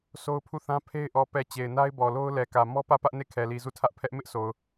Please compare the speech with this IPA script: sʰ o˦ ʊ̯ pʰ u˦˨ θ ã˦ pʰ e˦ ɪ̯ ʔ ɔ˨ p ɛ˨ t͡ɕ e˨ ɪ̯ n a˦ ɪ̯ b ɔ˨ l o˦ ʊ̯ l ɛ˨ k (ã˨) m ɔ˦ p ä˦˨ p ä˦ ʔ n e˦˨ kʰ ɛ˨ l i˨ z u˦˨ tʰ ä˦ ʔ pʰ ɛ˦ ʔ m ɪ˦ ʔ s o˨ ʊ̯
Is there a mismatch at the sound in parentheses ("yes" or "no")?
yes